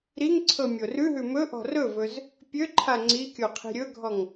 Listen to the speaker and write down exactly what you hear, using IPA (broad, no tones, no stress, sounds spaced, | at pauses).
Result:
ɾ i ŋ ǀʰ ɤ mʲ o r ʉ ɦ ʉ m ɵ ʔ ɔ̤ r ɵ v ɵ z | pʲ ø ǃʰ a ŋ͡ǀ i kʲ o qʰ i̤ ɾʲ ɵ ɡʱ ɔ ŋ